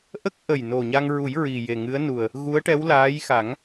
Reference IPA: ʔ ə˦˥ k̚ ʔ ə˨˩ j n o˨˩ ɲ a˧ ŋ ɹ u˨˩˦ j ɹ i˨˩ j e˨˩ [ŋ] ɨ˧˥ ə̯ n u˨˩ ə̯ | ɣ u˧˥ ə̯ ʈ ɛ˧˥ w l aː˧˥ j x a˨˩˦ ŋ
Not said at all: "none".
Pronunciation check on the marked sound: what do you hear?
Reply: ŋ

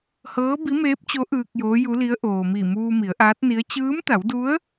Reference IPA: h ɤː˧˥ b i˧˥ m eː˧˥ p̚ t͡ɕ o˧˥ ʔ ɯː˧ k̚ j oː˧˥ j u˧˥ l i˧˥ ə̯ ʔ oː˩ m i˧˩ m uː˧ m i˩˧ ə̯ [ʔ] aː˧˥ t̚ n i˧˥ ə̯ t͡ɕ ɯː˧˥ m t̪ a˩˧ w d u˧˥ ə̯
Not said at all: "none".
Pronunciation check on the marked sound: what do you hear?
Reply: ʔ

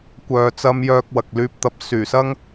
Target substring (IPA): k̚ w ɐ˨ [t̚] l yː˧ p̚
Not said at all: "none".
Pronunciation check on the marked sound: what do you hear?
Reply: k̚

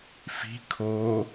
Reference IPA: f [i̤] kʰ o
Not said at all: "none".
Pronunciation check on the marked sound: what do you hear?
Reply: i̤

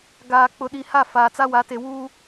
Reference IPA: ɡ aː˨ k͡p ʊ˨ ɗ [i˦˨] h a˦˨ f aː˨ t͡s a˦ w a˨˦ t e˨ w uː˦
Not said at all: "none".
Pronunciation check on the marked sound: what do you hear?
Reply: i˨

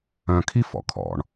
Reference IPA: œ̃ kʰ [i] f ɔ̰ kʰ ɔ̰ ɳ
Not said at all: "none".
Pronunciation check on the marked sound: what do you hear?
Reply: i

